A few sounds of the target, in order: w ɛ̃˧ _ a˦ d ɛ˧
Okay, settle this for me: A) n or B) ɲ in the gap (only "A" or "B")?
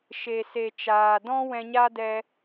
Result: B